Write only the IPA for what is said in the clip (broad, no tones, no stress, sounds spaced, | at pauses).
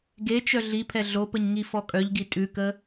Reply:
ɡ e t͡ʃ œ ɮ i pʰ ɛ ɮ o p ə ɲ ŋ i f ɔ kʼ œ ʎ ɡ i tʼ ʉ k ə